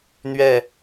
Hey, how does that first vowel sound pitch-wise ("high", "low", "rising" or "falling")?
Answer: falling